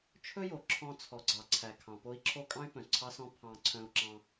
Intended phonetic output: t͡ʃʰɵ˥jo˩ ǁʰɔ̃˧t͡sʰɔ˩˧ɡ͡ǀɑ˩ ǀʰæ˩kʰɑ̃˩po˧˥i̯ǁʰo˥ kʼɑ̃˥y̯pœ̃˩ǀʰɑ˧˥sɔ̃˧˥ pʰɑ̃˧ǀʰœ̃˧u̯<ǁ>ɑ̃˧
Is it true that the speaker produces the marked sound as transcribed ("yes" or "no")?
yes